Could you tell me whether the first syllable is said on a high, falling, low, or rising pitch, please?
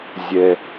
low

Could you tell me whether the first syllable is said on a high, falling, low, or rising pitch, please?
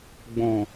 low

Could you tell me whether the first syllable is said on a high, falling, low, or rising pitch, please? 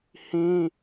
high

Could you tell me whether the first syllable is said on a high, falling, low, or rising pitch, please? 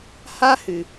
high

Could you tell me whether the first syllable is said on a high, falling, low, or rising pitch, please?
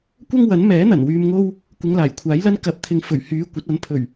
high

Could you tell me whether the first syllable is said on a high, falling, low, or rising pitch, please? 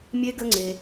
high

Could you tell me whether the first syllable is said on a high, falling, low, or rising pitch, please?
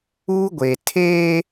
high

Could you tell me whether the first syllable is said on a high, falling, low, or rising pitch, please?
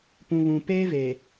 low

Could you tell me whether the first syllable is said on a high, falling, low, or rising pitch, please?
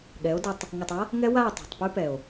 rising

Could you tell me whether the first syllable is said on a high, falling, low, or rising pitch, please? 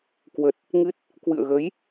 low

